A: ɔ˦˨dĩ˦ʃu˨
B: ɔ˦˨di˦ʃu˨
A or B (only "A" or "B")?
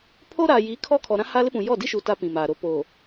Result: B